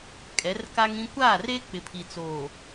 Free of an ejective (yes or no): no